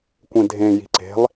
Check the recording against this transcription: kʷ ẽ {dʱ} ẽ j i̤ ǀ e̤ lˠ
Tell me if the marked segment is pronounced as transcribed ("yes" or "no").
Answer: yes